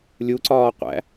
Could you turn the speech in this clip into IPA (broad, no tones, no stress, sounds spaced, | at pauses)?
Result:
lʲ u ǀ ɒː qʷ æ̰